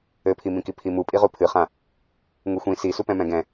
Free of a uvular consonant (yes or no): no